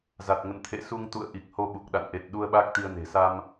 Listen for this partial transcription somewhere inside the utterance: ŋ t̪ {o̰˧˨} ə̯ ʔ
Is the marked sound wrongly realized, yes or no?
yes